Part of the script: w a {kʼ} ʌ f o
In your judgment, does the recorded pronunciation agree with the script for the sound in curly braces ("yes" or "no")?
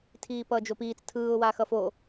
no